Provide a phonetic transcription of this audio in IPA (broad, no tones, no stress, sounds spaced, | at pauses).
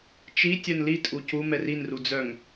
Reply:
t͡ʃ i tʲ œ n l i tʼ u c u m ɛ r i n r u d͡z œ ŋ